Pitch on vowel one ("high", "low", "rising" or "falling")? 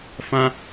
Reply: high